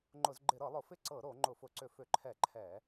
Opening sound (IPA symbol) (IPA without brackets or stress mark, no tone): ŋ͡ǃ